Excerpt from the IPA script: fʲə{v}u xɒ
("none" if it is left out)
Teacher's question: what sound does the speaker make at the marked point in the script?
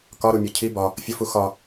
f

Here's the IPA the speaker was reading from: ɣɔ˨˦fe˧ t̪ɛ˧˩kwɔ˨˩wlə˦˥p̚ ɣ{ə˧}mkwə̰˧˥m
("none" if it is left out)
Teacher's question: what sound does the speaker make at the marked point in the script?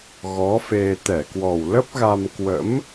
a˧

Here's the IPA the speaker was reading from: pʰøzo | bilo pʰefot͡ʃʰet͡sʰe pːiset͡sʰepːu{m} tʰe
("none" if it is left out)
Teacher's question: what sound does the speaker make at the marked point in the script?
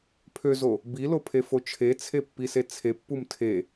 m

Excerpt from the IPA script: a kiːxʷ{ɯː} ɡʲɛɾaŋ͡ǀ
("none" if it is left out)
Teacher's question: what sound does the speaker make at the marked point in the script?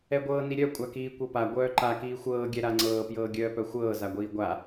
ɤː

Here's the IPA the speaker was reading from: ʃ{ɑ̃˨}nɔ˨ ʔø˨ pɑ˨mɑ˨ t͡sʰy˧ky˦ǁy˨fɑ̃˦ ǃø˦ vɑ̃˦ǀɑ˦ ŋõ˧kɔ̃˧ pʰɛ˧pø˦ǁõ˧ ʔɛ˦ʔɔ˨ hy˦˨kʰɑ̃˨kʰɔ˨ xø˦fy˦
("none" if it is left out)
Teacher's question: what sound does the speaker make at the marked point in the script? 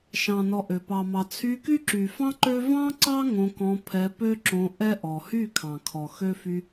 ɑ̃˨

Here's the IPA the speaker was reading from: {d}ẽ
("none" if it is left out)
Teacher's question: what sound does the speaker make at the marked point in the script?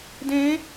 d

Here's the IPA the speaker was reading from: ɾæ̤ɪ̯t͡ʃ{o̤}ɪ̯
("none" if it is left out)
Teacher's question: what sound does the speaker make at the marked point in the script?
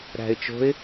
o̤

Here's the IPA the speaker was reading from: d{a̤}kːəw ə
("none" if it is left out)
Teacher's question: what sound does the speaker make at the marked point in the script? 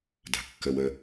a̤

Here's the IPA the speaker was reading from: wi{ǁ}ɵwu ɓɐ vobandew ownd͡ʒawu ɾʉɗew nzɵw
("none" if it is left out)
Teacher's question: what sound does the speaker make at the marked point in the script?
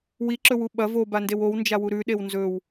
ǁ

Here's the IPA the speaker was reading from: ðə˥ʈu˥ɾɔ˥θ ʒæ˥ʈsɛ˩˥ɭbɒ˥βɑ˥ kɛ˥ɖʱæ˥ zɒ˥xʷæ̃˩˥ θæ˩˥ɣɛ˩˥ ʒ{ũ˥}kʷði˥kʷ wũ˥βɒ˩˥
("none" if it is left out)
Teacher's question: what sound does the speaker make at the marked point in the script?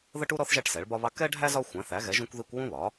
ũ˥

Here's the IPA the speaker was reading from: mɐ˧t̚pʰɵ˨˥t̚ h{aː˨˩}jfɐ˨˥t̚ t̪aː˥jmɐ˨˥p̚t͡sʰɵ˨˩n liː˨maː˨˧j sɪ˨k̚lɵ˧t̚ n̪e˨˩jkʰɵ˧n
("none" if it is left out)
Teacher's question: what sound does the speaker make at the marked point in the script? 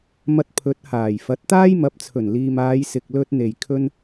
aː˨˩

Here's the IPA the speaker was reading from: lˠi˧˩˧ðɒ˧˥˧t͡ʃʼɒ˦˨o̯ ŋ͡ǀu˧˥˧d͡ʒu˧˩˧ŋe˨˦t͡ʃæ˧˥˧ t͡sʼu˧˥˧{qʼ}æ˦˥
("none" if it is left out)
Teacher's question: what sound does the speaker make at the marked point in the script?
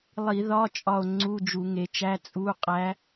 qʼ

